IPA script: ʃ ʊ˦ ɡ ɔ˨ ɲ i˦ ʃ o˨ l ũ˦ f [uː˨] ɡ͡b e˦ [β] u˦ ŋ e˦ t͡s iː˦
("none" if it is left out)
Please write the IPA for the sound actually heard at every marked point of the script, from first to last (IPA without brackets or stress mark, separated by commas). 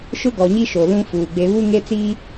uː˨, β